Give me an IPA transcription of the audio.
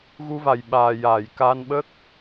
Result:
ɣ u˧ v a˨˩ j ɓ aː˨˩ j aː˨˩˨ j k aː˧ n ɓ ə˦˥ k̚

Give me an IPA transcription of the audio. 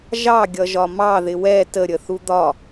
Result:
ʒ ɑ ɡʲ ʌ ʒ ɒ m ɑ ð ɪ w ɛ t ə ɾʲ ə θ u d̪ ɒ

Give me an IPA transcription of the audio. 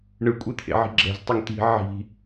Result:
ɳ ɯ kʷʼ e t̪ʰ ḛ ʕ i̤ ɡ͡ǁ ɛ̤ z tˤ e ŋ t̪ i̤ ʕ i̤

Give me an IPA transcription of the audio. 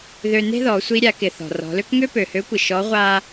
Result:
ð ø˧ n e̤˥ ð ɔ˩˧ sʷ i˧ ɾʲ a˩˧ k ɪ˩ θ ɔ̤˩ r ɔ̤˩˧ l ø˥ k ŋ ø˥ p ø˩ h ø˧˥ kʷ ɪ˩ ʃ ɔ˧˥ ʁʷ a˥

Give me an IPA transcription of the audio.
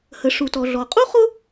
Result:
h ə˩ ʂ u˩ t ɔ˩ ɮ ɔ˩ qʼ u˥ χ ʊ˥

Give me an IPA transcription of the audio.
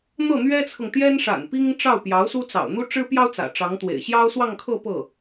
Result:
n̪ ɤ˥˩ n̪ ɥ ɛ˥ t͡sʰ ɤ˨ ŋ t̪ j ɛ˥ n ʂ a̰˨˩ n p i˥ ŋ ʈ͡ʂ ɑ˥˩ ʊ̯ p j ɑ˧˥ ʊ̯ s u˥ t͡s ɑ̰˨˩ ʊ̯ n̪ u˥ ʈ͡ʂ ɻ̩˥ p j ɑ˥ ʊ̯ t͡s ä̰˨˩ ʈ͡ʂ ɑ˧˥ ŋ t̪ w ḛ˨˩ ɪ̯ ɕ j ɑ˥ ʊ̯ s w ɑ˥˧ ŋ kʰ ɤ˥˧ p ɤ˥˩

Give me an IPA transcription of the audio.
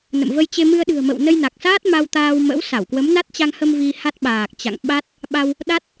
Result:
n ə̰˧˨ m v ə˧ j t͡ɕ e˧ m ɨ˧ ə̯ ɗ ɨ̤˨˩ ə̯ m ə̰˧˨ w n ə˧ j n a˨˩ k̚ s aː˦˥ t̚ m a˧ w t̪ aː˧ w m ə̰˧˥ w s a˧˩ w k w ə˨˦ m n a˦˥ t̚ t͡ɕ a˧ ŋ h ə˧ m v i˧ h a˦˥ t̚ ɓ aː˨˩ k̚ t͡ɕ a̰˧˨ ŋ ɓ a˦˥ t̚ | ɓ a˧ w | ɗ a˦˥ t̚

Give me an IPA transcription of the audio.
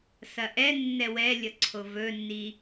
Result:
s ɐ ʔ ɛ nː ɛ w ɛ lʲ ʌ ǀʰ o v ɵ nː i

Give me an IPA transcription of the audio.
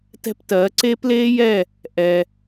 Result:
t ɛ̤˦ p t ɜː˨˦ ǀ eː˦ p l eː˦ j ɛ˦˨ | ʔ ɛ˧

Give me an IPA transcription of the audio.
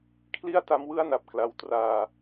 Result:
kʰ l i˥˩ a̯ t a˦˥ m w ɯ˥˩ a̯ n a˨˩ p̚ k l a˦˥ w t r aː˧

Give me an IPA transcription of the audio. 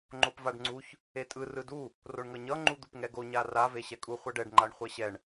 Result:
ŋ͡ǃ o p v a ɖ ŋ͡ǀ u ç | e tʼ ɯ r ɯ d u | r o ɳ ŋ ʌ ɲ ʌ ŋ͡ǃ u d̪ u p ŋ ɛ ɡ o ɲ a r a v e ɕ ɛ kʼ u χʷ a ɖ ɛ ɖ ŋ͡ǃ a ɳ χʷ ɛ ɕ ɛ ɳ

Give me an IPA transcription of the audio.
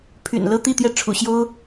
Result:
pʰ y̰˨˩ n l ɤ˥ t̪ i˥˧ t̪ j ɛ˥˩ ʈ͡ʂʰ ṵ˨˩ ɕ j o˥ ʊ̯

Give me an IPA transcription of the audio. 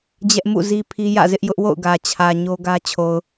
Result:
d͡ʑ ɛ˦ ʔ m ṵ˦˨ z i˦ pʰ i˦ j ä̰˦˨ z ɪ˦ ʔ j ʊ˦ ʔ w o̰˦˨ ʊ̯ ɡ ä˨ t͡ɕʰ ä˨ ɲ o˦ ɡ ä˦ t͡ɕʰ o˨ ʊ̯

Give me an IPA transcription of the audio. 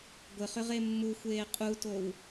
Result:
ɡʷ ɘ χ ʏ ʁ e mː u xʷ eː qʼ u t o w

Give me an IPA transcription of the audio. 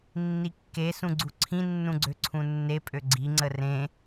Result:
nː i kː e s ũ ɡ͡ǀ u ǀʰ ĩ nː ũ ɡ͡ǀ ø ǀʰ ũ nː e pʼ ø ɡ͡ǀ i ŋ͡ǀ ə r ẽ

